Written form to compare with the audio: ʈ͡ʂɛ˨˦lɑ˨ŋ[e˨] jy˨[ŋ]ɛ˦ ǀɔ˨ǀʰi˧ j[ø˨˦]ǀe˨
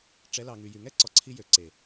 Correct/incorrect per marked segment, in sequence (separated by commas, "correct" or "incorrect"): incorrect, correct, incorrect